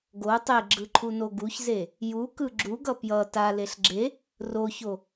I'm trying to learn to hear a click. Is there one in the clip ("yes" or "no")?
yes